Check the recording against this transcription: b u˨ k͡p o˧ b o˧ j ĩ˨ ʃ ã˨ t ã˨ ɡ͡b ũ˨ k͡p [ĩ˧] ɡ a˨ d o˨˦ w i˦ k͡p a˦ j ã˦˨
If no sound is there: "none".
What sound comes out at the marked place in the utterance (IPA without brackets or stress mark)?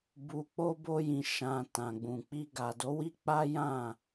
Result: i˧